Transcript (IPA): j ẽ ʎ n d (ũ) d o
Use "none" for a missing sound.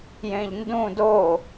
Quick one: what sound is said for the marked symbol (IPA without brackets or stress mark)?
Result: ũ